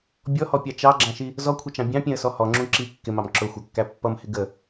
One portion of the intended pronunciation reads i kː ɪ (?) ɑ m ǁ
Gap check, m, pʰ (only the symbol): m